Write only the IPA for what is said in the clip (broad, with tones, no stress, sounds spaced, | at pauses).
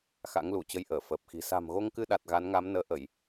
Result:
x a̰˧˥ ŋ l u˧˩ t͡ɕ ə˧ j ʔ əː˧˩ f əː˨˩ p̚ x i̤˨˩ s a̤˨˩ m ɣ o˧ ŋ k ɨ˧ ɗ a˨˩ t̚ ɣ a˨˦ n ŋ a˨˦ m n əː˨˦ ʔ ə˧˩˨ j